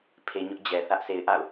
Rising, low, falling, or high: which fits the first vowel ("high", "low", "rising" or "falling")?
low